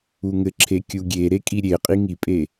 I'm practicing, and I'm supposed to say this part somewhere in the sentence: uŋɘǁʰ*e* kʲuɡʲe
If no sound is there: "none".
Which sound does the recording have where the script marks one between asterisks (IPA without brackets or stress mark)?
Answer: e